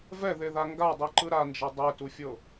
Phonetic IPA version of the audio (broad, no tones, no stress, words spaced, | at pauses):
vɛðeða ŋɡadˤiǃɯ ɾand͡ʒɤ dˤetufʲɤ